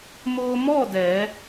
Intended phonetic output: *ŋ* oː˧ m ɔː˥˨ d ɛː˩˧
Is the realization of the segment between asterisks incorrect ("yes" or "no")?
yes